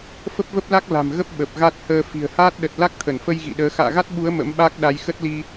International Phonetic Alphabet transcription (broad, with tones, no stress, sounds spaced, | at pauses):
f ə˦˥ p̚ v ə˦˥ p̚ l a˦˥ k̚ l a̤˨˩ m ɣ ə˦˥ p̚ ɓ ə˨˩ p̚ ɣ a˦˥ t̚ h əː˧ f i̤˨˩ ə̯ h aː˦˥ t̚ ɗ ə˨˩ t̚ l a˦˥ k̚ t̪ʰ ə˧˩ n f ə˧ j ɣ ḭ˧˨ ɗ əː˨˦ x a̰ː˧˨ ɣ a˦˥ t̚ ɓ u˨˦ ə̯ m ə̰˧˥ m ɓ aː˦˥ k̚ ɗ a˨˦ j x ə˦˥ t̚ l i˧